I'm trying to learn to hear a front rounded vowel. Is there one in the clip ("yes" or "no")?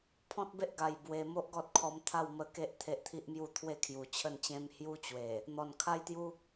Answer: no